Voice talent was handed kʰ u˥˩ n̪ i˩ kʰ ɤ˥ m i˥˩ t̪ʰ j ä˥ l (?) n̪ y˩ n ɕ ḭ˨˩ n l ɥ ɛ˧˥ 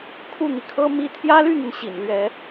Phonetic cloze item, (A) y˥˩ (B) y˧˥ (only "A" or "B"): A